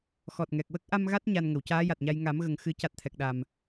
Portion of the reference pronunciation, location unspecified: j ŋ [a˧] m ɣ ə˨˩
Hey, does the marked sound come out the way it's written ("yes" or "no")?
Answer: no